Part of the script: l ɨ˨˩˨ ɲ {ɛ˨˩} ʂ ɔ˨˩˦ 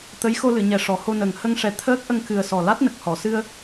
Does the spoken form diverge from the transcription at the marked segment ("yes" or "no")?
no